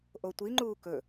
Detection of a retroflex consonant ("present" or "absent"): absent